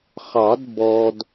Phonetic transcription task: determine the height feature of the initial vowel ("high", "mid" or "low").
low